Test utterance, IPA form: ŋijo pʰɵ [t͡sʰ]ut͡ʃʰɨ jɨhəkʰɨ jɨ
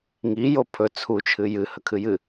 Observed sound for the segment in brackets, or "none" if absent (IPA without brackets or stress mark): t͡sʰ